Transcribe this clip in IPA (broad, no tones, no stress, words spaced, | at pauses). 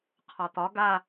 qʰɒt̪ɒ ɡa